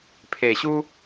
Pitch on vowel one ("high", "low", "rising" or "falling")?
low